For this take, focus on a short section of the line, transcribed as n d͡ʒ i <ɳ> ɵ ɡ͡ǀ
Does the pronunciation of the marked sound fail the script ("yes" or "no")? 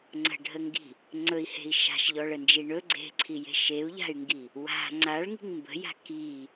no